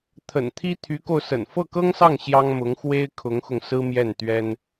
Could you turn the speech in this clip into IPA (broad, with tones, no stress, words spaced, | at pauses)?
t̪ʰə̰˨˩nt̪ʰi˥t̪ʰy˧˥ko˧ʊ̯ sə̰˨˩nfɤ˥˩kɤ˥ŋsɑ˥˩ŋ ɕjɑ˥ŋmʊ˧˥ŋ xwe˥ɪ̯kʰʊ˧˥ŋxʊ˧ŋ sɹ̩˥mjɛ˥˩nt̪ɥɛ˥n